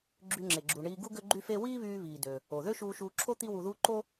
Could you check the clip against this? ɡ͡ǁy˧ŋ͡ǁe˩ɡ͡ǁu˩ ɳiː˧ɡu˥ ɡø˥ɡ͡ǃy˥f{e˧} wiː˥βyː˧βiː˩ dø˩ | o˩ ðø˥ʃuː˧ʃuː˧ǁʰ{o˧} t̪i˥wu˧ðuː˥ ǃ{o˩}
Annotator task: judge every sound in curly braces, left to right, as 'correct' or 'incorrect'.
incorrect: e˥, incorrect: o˥, incorrect: o˥

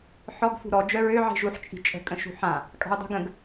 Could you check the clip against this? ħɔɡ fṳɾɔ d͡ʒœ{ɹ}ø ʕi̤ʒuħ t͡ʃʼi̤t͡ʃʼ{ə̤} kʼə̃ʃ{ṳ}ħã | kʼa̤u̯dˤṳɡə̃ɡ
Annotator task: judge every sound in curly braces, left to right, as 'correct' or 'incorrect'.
correct, correct, correct

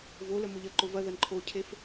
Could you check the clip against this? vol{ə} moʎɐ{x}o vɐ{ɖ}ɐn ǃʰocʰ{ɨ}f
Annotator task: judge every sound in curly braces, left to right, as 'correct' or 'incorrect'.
correct, incorrect: ǃ, incorrect: ð, incorrect: e

